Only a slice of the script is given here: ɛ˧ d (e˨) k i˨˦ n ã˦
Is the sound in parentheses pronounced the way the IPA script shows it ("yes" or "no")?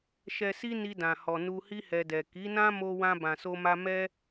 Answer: no